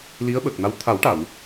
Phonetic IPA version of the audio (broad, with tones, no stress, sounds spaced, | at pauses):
l i˧˥ ə̯ ɓ ə˨˩ k̚ n a˧˥ w t̪ʰ a˨˩˦ w ʈ a˨˩˨ w